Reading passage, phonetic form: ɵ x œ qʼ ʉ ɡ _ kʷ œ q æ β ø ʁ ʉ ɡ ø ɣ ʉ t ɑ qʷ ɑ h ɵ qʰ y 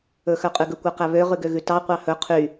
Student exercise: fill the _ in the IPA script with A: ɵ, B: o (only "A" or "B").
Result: A